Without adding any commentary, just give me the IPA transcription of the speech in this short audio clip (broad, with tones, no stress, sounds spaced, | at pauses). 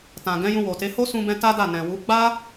t ã˨ ɡ ɛ̃˨˦ j ũ˧ w o˨ t e˨˦ h o˦ s ũ˧ b ɛ̃˧ t a˦ d a˦˨ n ɛ̃˨ w u˨˦ ɡ͡b a˦